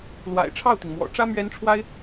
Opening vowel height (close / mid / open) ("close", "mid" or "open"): open